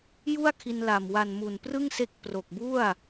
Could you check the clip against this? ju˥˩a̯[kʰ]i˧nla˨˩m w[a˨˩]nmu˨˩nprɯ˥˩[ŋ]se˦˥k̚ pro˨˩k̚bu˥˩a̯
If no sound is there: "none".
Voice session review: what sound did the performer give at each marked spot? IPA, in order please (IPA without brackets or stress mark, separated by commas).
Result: kʰ, a˨˩, ŋ